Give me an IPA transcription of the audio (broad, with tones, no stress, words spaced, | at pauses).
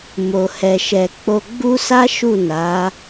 mo˨hɛ˨ʃɛ˨ k͡po˧ɡ͡bu˦sa˦ ʃu˦˨na˨˦